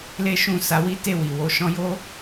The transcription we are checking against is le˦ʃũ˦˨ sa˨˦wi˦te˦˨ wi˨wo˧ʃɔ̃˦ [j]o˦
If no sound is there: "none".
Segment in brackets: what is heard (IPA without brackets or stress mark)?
j